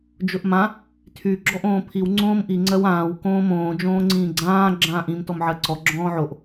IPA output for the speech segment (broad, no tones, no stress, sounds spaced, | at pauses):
d͡ʒ ʊ ʔ m ã | tʰ y ɡ͡ǁ ɔ ʔ õː pʰ i w ŋ͡ǀ õː m ʔ i ŋ͡ǀ ɜ w ãː w k õː m õː d͡ʒ õː ŋ͡ǀ ĩː ɡ͡ǀ ãː ɡ͡ǁ ãː ʔ ĩ m t ɔ m ʕ ɜ ǀ ɔ ɡ͡ǁ ɔ̃ː ʕ o ʔ